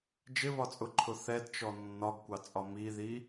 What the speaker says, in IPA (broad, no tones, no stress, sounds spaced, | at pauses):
d͡ʒ ɪ β ɒ t͡sʼ ʊ ǃʰ ʊ θ ɛ d t͡ʃ ɔ nː ɒ ɡ kʷ ɑ t͡sʼ ɒ m i ð i